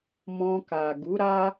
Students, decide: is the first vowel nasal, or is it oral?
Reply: nasal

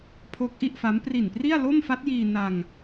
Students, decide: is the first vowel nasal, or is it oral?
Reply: oral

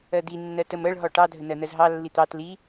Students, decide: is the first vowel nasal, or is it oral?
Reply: oral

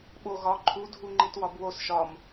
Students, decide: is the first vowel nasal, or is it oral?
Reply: oral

